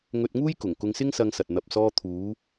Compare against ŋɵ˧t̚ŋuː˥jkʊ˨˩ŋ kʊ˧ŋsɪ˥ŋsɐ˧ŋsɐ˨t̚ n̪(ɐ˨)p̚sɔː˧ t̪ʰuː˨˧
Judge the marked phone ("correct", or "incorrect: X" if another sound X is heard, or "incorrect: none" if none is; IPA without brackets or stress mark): correct